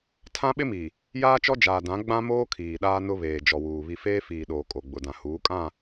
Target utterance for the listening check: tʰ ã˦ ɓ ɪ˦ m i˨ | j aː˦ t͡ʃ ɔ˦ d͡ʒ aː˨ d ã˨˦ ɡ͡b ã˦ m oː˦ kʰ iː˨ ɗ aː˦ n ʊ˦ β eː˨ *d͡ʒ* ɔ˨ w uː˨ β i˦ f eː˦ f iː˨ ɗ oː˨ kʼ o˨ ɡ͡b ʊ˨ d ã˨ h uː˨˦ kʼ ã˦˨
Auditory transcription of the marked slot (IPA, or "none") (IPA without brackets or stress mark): d͡ʒ